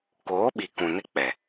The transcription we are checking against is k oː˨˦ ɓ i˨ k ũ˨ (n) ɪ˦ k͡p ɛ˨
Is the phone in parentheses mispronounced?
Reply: no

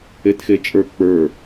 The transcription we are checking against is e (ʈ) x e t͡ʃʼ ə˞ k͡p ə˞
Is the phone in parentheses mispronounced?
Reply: yes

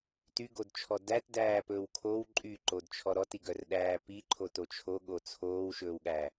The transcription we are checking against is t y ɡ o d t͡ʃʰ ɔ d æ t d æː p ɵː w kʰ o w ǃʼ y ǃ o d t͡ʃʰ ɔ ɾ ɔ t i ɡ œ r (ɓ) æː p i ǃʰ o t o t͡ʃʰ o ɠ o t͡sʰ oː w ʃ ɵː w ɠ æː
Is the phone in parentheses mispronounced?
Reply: yes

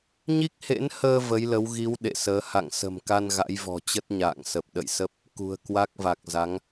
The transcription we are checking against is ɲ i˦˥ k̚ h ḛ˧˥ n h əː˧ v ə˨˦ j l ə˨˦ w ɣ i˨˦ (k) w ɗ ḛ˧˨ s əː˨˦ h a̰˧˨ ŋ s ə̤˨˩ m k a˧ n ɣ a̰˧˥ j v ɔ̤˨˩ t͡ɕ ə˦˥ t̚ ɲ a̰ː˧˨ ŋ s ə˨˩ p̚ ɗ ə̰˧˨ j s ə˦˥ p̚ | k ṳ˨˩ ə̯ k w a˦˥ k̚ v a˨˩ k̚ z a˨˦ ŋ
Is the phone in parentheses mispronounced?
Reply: yes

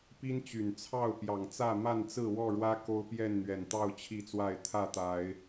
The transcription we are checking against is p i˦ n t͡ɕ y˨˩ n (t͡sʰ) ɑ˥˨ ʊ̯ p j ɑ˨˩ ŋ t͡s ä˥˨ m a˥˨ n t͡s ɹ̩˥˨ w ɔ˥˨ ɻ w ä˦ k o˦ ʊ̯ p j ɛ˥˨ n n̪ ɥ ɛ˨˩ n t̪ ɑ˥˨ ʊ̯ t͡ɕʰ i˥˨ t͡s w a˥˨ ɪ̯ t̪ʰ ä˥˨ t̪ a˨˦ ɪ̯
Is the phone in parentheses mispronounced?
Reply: no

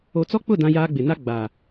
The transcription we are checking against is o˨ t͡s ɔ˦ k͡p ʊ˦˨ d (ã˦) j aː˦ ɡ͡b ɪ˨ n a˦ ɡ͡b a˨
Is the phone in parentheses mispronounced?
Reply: no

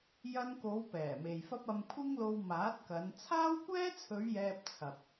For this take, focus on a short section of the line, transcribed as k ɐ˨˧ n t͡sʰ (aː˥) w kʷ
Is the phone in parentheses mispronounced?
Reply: no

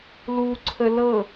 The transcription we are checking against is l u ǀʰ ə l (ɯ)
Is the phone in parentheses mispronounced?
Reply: yes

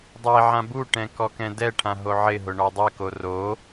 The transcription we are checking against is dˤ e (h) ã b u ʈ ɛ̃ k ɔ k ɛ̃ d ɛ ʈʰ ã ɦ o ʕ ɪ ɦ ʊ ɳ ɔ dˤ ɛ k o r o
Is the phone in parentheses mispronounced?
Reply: yes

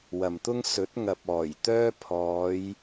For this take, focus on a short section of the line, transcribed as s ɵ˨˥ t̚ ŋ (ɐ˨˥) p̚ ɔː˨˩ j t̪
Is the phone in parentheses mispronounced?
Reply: yes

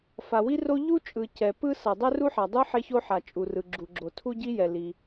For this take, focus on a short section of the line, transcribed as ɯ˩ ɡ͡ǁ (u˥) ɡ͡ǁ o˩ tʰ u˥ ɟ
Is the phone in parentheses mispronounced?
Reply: yes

